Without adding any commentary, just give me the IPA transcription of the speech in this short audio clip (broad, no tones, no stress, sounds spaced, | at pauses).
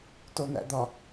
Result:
t o n æ̰ d̪ ɒ